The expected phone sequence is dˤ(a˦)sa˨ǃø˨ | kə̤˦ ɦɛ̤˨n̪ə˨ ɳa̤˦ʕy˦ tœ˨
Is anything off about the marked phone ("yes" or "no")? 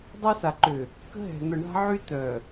no